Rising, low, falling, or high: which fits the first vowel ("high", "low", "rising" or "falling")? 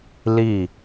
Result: falling